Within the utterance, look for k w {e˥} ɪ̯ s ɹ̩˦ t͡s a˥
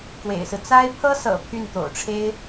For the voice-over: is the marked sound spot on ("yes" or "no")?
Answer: no